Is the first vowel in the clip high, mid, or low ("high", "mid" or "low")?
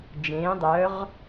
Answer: mid